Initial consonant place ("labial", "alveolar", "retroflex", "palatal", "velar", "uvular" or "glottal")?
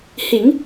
glottal